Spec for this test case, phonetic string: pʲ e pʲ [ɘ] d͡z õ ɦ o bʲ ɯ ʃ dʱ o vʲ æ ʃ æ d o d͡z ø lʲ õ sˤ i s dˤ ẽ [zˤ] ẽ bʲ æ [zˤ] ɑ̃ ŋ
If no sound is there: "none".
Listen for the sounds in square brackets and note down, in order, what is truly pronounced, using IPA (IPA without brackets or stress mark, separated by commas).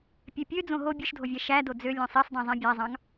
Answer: ø, zˤ, zˤ